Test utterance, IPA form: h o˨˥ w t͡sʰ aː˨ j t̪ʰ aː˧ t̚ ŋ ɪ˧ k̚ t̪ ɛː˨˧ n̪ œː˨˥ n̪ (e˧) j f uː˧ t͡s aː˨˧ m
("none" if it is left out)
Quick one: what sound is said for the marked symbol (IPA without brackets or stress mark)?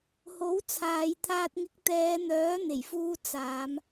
e˨˩